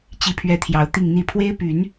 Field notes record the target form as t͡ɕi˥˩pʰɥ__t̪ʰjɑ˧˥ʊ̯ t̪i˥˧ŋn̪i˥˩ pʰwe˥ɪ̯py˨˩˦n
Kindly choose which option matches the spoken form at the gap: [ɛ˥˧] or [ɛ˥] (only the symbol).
ɛ˥